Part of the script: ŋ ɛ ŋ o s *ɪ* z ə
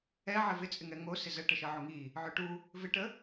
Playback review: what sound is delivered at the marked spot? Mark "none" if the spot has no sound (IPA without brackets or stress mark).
ɪ